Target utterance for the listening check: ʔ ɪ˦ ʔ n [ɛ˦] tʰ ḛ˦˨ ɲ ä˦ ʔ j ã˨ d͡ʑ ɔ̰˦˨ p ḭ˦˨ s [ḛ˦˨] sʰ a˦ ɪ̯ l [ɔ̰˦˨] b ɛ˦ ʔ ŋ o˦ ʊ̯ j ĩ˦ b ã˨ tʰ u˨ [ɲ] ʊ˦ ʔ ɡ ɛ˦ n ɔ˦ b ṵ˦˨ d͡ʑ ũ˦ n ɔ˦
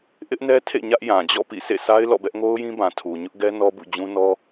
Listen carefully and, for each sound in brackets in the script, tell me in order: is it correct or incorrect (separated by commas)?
correct, correct, correct, correct